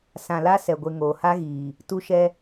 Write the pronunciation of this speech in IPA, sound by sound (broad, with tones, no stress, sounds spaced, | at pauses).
s ã˨ l a˦ s ɛ˨ ɡʷ e˨ ŋ oː˨ h a˦ ɣ iː˨ | t u˦ ʃ ɛ˦